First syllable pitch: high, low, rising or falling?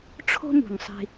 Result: high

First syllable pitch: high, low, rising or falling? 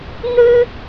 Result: high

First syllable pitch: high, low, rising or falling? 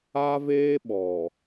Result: high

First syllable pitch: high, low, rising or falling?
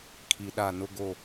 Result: low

